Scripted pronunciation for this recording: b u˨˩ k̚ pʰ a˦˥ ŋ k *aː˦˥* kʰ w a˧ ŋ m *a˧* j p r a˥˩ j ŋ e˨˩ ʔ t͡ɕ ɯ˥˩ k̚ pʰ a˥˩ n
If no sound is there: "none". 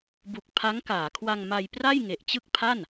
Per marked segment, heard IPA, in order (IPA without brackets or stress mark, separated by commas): aː˩˦, a˧